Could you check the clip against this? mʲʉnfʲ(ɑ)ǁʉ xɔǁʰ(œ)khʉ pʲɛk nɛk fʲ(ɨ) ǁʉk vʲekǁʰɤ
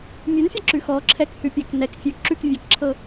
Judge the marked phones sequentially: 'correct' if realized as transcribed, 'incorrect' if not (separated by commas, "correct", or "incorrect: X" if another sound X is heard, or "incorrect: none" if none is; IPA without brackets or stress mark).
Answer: correct, incorrect: ɛ, incorrect: ʉ